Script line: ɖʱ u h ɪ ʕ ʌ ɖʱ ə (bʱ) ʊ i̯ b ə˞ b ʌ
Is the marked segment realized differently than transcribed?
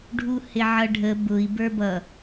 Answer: yes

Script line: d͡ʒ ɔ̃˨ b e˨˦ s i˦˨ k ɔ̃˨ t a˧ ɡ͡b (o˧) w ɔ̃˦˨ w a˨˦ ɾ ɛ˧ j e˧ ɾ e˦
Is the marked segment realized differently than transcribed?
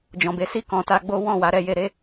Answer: yes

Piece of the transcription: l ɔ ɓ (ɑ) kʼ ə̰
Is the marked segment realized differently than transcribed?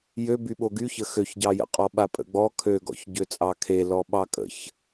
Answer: no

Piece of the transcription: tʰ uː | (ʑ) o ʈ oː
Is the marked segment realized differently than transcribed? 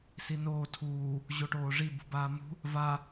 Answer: no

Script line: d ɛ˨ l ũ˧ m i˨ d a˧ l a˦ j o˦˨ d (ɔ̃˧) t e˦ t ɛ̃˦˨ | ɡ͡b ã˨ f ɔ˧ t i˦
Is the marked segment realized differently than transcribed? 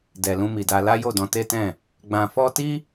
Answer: no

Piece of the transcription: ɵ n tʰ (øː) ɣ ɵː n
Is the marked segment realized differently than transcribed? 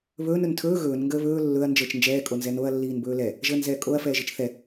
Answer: yes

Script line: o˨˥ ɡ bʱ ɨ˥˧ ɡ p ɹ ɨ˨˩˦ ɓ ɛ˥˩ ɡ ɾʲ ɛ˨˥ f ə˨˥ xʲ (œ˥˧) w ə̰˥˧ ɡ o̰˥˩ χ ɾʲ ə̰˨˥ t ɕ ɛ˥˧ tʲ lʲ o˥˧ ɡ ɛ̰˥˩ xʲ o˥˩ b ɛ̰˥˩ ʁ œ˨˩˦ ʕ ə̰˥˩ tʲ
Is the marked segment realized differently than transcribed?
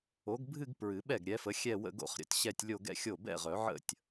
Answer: yes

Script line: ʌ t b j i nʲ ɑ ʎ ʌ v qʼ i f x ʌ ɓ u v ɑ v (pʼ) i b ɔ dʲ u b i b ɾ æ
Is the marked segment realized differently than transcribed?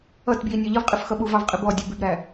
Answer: yes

